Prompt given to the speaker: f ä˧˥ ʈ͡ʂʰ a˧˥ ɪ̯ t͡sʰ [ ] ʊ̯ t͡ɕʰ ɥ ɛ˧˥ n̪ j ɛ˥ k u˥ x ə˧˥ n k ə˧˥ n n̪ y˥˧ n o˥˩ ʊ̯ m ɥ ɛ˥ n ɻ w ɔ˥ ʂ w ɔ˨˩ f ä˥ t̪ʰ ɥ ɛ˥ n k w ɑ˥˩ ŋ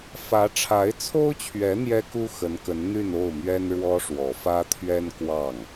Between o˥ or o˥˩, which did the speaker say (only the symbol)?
o˥